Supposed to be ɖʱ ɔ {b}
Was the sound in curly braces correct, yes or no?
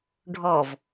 no